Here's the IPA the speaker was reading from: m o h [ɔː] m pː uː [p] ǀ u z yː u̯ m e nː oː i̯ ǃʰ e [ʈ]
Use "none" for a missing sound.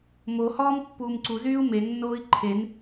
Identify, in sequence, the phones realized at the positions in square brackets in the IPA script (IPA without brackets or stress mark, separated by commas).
ɔː, m, n